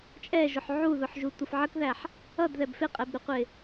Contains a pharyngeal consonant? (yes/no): yes